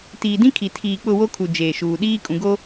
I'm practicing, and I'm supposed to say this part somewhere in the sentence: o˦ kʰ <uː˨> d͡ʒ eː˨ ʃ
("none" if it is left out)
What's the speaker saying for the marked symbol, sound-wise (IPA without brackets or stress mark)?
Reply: u˨